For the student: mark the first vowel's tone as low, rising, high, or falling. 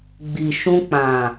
low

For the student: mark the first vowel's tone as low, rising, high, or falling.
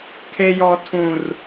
high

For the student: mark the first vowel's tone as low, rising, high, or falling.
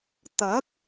rising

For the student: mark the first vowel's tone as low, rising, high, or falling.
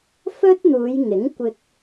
high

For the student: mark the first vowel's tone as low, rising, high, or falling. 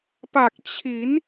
low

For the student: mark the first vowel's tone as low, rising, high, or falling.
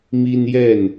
high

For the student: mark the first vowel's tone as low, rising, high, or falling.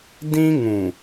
high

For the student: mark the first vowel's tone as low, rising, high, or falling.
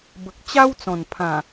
low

